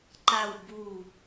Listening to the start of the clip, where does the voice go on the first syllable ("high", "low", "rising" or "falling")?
low